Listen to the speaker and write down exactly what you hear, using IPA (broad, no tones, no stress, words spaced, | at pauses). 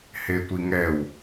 hetʷiŋɛw